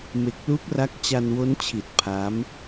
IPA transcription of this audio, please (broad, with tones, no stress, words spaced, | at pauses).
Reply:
me˨˩k̚lu˦˥k̚ra˦˥k̚ t͡ɕa˧nwo˦˥nt͡ɕʰi˨˩t̚ pʰa˦˥m